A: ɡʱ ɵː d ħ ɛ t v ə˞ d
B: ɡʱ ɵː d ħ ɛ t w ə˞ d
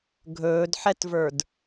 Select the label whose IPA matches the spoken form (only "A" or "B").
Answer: A